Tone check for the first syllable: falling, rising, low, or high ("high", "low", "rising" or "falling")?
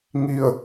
falling